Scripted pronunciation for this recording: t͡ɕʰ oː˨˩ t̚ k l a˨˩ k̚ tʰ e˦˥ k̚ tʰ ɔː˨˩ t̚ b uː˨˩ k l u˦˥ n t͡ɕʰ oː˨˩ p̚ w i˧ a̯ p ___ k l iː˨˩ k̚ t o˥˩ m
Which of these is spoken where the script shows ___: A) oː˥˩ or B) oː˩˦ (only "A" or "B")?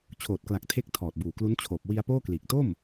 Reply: A